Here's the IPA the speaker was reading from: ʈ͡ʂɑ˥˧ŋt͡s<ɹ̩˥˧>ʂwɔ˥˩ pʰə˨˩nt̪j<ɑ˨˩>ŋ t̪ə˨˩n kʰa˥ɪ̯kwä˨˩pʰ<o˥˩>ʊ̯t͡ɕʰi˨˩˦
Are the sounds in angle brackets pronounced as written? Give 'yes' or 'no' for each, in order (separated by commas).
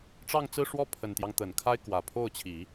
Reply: yes, no, yes